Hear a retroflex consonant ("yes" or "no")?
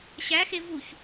no